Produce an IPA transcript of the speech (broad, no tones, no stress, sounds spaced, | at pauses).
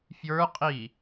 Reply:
f j ə˞ qʼ i